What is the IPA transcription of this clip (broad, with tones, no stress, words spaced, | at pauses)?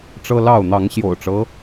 ʈ͡ʂɤ˦lɑ˥˨ʊ̯ n̪ɑ˨˦ŋɕjo̰˨˩ʊ̯ʈ͡ʂɤ˦